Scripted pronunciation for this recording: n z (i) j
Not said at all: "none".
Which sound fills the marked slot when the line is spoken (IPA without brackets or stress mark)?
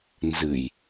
ɨ